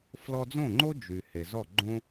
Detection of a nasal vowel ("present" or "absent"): present